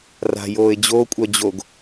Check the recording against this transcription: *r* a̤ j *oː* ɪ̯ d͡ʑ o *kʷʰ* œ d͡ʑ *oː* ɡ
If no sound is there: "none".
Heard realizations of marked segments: r, oː, kʷʼ, o

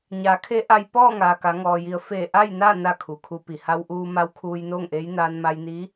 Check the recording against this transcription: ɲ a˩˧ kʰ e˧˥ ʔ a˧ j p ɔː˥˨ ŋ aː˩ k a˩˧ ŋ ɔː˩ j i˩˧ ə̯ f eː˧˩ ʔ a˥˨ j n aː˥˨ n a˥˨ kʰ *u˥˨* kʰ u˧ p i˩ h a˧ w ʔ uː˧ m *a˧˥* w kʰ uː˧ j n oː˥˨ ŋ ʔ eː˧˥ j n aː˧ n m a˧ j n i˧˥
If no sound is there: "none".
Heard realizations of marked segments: u˩, a˧˥

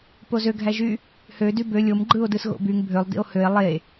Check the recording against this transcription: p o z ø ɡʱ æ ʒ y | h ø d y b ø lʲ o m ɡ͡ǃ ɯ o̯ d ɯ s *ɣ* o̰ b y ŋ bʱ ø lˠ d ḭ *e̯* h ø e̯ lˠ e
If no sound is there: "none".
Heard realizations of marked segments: ɣ, o̯

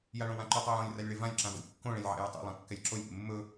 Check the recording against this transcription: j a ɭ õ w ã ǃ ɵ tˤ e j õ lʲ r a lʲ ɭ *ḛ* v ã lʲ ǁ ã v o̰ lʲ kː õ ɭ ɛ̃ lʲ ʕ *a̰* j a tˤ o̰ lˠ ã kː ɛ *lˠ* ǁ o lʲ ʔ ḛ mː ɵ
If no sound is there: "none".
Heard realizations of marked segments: e, a̰, lʲ

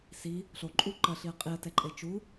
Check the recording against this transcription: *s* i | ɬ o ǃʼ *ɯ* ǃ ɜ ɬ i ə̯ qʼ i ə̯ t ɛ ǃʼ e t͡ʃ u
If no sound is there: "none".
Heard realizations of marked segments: s, u

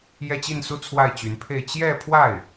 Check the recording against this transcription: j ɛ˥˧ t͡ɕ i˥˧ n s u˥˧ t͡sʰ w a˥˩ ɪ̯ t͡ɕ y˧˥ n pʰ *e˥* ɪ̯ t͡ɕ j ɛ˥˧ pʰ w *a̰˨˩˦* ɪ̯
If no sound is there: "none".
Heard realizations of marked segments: e˥˧, a˥˩

